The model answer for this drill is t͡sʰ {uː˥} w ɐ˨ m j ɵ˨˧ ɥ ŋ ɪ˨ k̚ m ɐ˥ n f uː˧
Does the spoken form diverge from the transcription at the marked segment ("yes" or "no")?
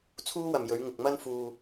no